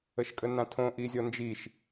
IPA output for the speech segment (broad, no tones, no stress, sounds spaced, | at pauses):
ə ʃ kʼ ə n ã tʰ õ ʔ i zʲ ɔ n d͡ʒ i ʃ